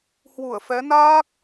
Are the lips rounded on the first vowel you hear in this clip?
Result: yes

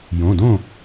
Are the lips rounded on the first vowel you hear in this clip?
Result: yes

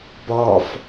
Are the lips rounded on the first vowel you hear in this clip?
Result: yes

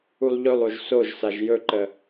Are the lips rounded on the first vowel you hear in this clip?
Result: yes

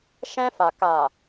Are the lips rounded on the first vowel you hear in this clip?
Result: no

